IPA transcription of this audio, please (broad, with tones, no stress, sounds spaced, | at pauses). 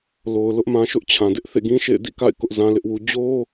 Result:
l o˨ ʊ̯ l ʊ˦ ʔ m ã˦ ʃ ʊ˦ ʔ t͡ɕʰ ã˨ d ɪ˦ ʔ θ ḛ˦˨ ɡ ĩ˦ ʃ ḛ˦˨ ɪ̯ d ḭ˦˨ k a̰˦˨ ɪ̯ k ʊ˦ ʔ z ã˦ l ɪ˦ ʔ w u˦ d͡ʑ o˦